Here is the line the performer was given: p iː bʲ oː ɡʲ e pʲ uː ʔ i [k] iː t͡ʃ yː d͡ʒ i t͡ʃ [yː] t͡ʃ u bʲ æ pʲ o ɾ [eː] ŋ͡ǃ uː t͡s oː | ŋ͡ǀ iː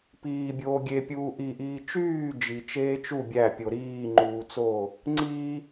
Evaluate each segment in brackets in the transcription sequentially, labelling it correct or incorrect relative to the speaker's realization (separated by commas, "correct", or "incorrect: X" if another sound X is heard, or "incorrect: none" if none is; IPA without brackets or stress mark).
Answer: incorrect: ʔ, incorrect: eː, incorrect: iː